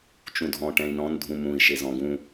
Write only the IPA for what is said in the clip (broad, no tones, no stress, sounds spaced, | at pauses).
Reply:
t͡ʃ ũ dʱ ɔ̃ ʈ ɛ̃ i̯ n ɔ̃ n dʱ ũ m ũ i̯ ʃ e z ɔ̃ ɡ ũ